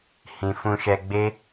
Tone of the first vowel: low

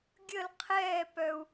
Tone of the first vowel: falling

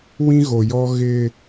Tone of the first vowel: high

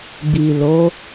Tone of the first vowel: low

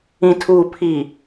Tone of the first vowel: low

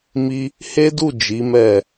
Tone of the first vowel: high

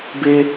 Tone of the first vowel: high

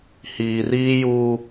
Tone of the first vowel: low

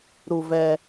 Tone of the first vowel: low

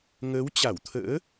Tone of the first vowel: rising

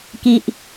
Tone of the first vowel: low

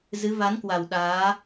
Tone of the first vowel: rising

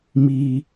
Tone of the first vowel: low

